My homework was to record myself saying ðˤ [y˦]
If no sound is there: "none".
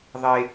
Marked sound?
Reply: e˦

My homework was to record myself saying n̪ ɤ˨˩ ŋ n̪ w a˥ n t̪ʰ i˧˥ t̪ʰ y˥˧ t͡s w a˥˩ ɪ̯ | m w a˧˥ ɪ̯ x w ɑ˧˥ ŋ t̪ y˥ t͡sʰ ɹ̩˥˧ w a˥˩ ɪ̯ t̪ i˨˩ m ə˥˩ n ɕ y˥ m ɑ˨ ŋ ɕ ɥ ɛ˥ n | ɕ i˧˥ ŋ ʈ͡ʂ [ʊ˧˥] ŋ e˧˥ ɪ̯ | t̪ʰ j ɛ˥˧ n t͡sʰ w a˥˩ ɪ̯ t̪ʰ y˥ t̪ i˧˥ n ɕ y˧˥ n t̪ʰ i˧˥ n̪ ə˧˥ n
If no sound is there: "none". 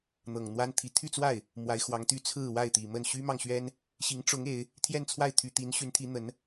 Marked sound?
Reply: ʊ˧˥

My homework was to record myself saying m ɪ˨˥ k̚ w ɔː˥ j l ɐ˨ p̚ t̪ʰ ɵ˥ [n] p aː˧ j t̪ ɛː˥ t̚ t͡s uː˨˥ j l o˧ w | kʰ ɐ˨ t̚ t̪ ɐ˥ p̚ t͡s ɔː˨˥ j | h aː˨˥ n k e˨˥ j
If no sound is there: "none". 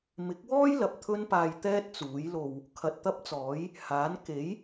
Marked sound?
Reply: n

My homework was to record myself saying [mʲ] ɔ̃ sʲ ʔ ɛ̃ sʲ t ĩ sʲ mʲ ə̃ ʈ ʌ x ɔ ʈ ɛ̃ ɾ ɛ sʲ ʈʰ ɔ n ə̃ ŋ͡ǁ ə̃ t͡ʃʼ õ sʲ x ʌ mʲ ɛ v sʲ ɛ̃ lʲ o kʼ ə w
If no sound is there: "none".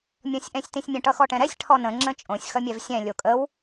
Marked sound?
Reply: mʲ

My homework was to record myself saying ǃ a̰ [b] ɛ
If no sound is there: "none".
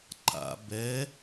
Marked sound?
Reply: b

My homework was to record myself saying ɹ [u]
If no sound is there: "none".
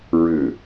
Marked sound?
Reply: ʏ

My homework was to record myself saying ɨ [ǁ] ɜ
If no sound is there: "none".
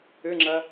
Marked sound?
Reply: ŋ͡ǁ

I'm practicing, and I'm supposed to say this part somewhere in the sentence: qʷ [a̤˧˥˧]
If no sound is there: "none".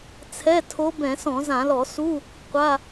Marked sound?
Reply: a˧˥˧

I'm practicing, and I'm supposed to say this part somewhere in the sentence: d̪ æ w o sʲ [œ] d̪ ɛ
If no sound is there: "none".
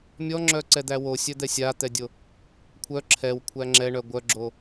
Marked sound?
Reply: œ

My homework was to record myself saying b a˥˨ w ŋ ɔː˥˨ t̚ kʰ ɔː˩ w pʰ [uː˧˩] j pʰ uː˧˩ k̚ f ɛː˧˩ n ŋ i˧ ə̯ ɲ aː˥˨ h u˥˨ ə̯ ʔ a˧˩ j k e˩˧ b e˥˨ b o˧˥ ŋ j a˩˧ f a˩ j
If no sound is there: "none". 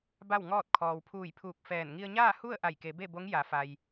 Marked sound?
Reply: uː˧˩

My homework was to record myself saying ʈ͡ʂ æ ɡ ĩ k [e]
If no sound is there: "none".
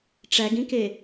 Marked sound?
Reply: e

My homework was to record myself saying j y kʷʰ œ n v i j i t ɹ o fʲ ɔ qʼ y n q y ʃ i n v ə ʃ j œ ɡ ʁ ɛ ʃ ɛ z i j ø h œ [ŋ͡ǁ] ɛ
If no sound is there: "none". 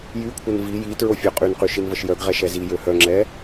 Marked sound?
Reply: ŋ͡ǁ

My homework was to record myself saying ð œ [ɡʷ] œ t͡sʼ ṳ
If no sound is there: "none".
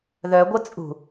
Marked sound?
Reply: ɡʷ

